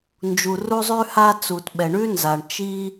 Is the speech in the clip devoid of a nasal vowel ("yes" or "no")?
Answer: yes